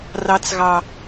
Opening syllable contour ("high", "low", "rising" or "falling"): high